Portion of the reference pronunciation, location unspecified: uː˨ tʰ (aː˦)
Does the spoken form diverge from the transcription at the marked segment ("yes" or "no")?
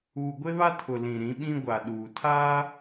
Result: no